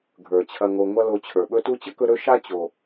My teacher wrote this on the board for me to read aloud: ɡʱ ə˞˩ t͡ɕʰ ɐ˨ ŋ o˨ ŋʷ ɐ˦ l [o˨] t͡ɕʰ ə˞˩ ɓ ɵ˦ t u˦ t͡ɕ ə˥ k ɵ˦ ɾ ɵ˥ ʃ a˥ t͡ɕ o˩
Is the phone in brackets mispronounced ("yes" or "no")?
no